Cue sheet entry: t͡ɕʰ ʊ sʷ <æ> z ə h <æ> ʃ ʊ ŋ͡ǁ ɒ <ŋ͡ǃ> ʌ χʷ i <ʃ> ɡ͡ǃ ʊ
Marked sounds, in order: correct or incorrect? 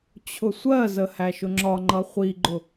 incorrect, correct, correct, incorrect

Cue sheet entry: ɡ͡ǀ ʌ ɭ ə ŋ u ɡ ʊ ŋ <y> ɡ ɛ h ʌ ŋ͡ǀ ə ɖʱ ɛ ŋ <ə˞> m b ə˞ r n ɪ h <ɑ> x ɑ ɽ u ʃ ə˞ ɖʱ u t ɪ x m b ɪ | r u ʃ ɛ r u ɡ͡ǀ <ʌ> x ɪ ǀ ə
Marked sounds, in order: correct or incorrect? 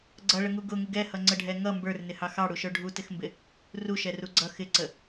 incorrect, incorrect, correct, correct

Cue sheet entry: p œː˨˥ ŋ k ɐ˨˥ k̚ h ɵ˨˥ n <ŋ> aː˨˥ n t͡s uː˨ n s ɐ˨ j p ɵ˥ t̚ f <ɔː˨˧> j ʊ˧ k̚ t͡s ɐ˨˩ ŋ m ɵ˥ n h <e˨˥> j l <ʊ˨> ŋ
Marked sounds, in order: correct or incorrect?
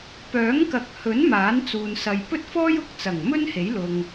incorrect, incorrect, correct, correct

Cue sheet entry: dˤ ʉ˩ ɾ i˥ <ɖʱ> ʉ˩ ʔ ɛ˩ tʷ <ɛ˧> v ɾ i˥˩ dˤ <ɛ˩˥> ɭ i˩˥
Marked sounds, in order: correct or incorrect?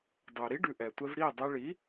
incorrect, correct, incorrect

